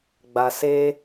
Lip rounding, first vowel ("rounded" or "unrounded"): unrounded